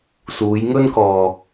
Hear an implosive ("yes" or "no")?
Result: no